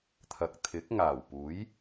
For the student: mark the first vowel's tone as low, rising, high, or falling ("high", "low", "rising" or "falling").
low